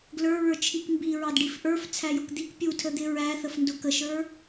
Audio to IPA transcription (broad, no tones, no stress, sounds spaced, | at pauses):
ɡ l ə˞ ɹ ə˞ t͡ʃʰ i k m b i ɹ ɑ d ɖ i f ʔ ə˞ f t͡sʰ æ j ʊ k d̪ i k pʲ u tʰ ə d̪ ɪ ɹ æ θ ə f n d ʊ k ə ʃ ə˞